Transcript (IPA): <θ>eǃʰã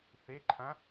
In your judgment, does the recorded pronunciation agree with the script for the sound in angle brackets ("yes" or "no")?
yes